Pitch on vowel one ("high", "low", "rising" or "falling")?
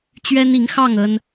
high